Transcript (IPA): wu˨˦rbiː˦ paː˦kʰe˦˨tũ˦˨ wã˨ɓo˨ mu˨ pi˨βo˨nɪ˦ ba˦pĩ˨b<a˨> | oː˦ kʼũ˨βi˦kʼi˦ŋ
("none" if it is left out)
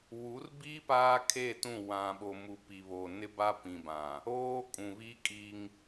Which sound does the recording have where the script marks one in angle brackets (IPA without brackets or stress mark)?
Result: ã˨